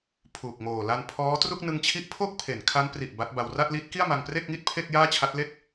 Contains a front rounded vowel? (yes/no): no